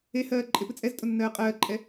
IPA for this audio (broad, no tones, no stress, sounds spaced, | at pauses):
e h ɜː ǃʼ e p ɨ t͡sʼ ɛ z tʼ ʊ nː ɜː qʼ ɜː ǃʼ ɛ